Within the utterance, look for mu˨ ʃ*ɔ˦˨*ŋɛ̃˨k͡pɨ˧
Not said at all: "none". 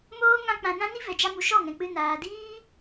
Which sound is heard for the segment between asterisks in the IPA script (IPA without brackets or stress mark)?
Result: ɔ˦˨